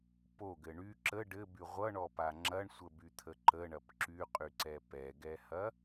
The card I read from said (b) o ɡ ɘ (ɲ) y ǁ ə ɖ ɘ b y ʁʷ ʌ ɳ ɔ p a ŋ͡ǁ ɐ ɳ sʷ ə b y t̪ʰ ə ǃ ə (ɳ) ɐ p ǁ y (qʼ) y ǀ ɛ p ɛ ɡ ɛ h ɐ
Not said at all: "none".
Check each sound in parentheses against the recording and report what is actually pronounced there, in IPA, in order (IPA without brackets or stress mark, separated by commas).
p, ɳ, ɳ, qʼ